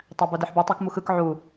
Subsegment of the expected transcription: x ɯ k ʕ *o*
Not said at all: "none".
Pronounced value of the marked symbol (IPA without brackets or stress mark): u